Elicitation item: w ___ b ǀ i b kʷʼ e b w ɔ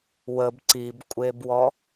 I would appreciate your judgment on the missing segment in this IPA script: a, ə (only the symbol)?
ə